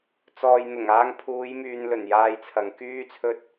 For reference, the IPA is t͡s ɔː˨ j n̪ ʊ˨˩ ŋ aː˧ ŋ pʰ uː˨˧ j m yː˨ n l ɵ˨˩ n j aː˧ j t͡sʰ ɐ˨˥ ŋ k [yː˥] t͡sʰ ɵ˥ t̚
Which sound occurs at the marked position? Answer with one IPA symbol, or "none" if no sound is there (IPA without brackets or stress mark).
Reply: yː˥